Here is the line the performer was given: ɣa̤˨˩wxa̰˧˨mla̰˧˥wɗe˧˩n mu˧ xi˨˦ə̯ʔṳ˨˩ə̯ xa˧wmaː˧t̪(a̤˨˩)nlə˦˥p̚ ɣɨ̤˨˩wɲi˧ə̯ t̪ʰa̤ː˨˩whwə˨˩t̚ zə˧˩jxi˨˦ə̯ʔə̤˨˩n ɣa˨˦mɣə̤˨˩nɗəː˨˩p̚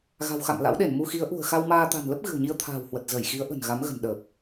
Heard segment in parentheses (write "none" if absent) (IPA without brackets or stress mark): a̤˨˩